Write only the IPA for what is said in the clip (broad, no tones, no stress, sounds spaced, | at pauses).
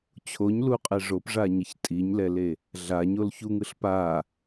t͡ɕʰ o ɲ l u qʼ ɛ ʐ o p ʐ a ɲ ʌ ç tʼ i ɲ l ɛ l e | ɮ a ɲ o l ç u ŋ ɯ ɬ p a